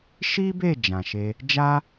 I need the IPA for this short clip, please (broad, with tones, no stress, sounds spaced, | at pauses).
ʃ i˦ b e˦˨ d͡ʒ ã˨ ʃ e˧ | d͡ʒ a˦